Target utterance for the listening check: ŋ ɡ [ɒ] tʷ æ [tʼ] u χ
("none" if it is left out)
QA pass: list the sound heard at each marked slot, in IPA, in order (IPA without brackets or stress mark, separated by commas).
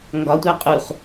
ɒ, qʼ